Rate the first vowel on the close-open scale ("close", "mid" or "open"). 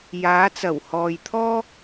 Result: open